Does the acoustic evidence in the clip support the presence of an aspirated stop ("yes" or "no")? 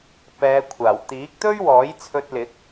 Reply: yes